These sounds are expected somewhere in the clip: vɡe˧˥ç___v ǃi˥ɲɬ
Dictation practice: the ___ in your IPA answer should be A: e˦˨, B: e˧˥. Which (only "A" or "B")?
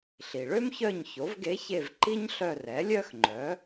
A